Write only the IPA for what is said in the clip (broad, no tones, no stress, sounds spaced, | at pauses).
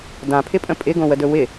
d ã pʰ ɪ pʼ ə̃ pʼ ɪ ɡ õ w ə d ɵ w ɪ